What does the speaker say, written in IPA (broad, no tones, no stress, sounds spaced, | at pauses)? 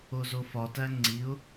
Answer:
o z o f ɒ t æ ŋ͡ǀ i ʊ̯